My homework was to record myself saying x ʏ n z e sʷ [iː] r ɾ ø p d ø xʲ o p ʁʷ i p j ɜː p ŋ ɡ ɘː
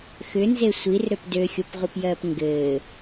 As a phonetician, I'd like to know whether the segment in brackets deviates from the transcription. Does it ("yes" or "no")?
yes